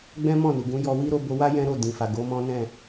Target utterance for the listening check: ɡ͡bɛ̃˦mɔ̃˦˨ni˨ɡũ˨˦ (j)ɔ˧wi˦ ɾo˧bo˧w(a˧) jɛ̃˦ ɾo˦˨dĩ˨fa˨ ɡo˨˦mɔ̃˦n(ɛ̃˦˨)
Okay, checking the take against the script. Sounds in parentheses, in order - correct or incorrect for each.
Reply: correct, incorrect: a˦, correct

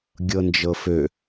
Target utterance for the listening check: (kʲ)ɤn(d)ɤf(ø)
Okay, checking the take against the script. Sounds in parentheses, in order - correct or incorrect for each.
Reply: incorrect: ɡʲ, incorrect: d͡ʒ, correct

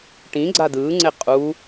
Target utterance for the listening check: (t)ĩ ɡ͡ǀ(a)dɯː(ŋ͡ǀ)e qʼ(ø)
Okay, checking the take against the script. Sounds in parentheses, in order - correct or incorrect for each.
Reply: incorrect: ʈ, correct, correct, incorrect: u

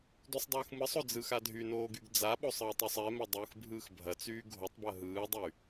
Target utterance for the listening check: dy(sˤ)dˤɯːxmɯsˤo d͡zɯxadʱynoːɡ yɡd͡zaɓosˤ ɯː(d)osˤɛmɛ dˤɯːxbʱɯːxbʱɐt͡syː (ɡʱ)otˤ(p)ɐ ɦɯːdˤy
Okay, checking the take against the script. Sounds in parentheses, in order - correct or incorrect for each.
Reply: correct, incorrect: tˤ, correct, incorrect: b

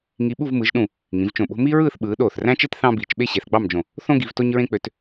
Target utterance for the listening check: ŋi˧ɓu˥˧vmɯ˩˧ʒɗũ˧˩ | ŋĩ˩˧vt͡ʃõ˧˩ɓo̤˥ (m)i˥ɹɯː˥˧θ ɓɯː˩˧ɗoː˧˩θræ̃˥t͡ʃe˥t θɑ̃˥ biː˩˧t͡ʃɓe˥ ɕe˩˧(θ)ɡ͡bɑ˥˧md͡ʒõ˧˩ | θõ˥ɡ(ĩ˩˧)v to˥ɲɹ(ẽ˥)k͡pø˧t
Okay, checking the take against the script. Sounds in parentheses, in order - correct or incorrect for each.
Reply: correct, correct, incorrect: i˩˧, correct

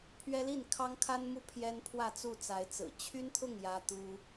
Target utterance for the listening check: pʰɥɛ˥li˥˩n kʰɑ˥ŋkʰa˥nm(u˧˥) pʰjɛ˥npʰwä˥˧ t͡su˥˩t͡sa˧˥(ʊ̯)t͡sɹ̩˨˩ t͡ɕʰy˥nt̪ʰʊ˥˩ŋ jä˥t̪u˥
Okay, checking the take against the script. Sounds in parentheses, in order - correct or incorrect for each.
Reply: incorrect: u˥, incorrect: ɪ̯

